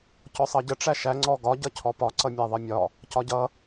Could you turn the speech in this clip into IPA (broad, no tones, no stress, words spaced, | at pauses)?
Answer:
cɔsˤʌɟə ʈ͡ʂæʃæ ŋ͡ǀɔɡɒ ɟʌcʰɔpɒ ǀʌmʲæðˤʌmʲɒ | cɒɟʌ